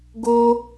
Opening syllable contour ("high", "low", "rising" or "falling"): high